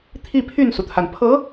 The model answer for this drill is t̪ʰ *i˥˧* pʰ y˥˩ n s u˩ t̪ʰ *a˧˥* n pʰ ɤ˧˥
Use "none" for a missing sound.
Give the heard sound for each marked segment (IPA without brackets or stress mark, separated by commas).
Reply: i˥˧, a˩